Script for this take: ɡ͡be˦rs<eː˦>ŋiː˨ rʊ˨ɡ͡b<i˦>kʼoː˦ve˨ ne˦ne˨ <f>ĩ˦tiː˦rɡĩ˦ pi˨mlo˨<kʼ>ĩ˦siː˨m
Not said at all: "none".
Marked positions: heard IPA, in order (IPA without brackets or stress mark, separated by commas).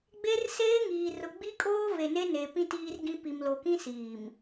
eː˦, i˦, p, k